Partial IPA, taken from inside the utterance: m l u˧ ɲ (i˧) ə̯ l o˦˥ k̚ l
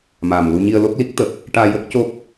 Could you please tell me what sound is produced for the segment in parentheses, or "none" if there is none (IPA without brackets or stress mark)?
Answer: i˧